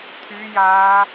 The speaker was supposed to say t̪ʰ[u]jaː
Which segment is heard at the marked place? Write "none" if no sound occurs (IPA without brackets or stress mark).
y